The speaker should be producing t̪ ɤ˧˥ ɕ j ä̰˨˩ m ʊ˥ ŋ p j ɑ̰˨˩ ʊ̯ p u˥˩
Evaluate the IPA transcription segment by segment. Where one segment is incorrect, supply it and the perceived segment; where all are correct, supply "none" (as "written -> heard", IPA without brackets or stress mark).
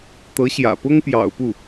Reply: m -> p